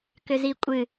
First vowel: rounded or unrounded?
rounded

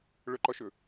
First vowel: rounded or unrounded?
rounded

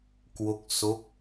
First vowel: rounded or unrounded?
rounded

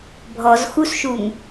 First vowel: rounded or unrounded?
rounded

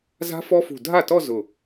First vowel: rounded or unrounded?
unrounded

